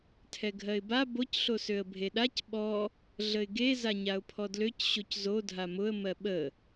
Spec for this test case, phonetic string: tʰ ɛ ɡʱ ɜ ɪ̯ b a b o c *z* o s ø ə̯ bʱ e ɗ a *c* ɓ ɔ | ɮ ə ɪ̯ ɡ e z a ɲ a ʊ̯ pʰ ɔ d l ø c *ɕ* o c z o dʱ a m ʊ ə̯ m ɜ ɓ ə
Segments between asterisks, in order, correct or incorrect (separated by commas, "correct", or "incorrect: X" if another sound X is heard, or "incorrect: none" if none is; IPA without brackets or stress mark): incorrect: ɬ, correct, correct